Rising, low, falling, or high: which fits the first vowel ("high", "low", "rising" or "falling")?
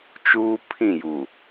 high